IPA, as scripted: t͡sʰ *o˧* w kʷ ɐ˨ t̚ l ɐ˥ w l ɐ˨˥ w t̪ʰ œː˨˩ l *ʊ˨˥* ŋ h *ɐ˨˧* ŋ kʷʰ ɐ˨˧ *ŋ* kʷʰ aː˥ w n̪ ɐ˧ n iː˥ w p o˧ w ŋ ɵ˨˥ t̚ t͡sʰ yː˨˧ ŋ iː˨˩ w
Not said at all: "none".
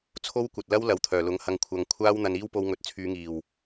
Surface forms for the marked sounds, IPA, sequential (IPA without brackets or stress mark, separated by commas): o˥, ʊ˨˥, ɐ˧, ŋ